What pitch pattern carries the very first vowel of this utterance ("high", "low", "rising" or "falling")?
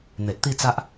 low